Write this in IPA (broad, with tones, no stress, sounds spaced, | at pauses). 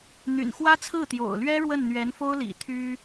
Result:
n̪ y̰˨˩ n x w ä˥ t͡sʰ ɹ̩˥˩ t̪ j o̰˨˩ ʊ̯ l ɥ ɛ˥ ɻ w ə˥˩ n n̪ ɥ ɛ˧˥ n f o˥ ʊ̯ l ḭ˨˩ t̪ʰ y˥